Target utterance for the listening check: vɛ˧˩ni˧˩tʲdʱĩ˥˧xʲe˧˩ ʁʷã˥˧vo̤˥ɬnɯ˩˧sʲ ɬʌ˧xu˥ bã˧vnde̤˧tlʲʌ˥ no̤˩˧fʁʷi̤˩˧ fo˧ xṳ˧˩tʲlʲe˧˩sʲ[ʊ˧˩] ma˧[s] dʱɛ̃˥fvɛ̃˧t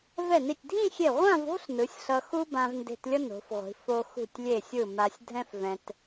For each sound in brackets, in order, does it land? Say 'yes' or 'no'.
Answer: no, no

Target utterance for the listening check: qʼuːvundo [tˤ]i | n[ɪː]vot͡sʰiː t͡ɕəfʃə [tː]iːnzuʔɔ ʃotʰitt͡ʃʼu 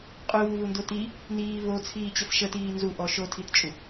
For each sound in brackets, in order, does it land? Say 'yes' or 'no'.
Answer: no, no, no

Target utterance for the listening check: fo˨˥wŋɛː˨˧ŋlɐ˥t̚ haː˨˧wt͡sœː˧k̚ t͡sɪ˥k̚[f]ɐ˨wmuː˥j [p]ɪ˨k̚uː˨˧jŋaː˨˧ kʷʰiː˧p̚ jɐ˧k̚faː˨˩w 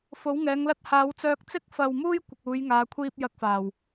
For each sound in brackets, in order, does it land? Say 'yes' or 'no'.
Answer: yes, no

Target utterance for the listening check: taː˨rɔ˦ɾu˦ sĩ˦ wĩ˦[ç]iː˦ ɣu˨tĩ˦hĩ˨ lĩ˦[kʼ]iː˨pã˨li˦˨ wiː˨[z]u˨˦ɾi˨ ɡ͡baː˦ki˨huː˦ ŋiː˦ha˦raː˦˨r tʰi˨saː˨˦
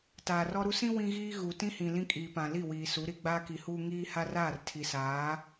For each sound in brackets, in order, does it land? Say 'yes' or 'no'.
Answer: no, yes, no

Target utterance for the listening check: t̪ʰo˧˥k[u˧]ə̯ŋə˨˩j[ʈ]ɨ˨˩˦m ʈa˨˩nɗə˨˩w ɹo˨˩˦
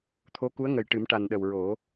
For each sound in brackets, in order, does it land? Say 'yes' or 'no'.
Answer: no, yes

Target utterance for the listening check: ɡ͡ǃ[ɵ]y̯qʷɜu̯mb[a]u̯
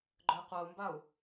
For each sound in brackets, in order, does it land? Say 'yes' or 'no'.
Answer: yes, yes

